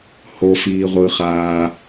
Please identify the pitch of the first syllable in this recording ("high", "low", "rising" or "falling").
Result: low